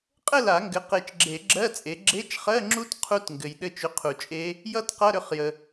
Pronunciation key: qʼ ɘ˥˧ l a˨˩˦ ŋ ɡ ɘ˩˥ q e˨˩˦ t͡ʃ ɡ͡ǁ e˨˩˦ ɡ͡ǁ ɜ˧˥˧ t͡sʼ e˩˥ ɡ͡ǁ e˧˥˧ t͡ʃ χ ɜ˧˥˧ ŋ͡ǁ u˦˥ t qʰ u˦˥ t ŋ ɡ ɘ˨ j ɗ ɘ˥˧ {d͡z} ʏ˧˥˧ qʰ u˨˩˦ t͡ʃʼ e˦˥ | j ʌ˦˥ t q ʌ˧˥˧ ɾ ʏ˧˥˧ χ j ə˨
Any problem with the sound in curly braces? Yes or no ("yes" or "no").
yes